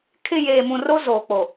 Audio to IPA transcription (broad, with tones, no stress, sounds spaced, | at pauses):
kʰ ɪ˨ j eː˨ m ũ˨ r o˦ z oː˨ k͡p o˨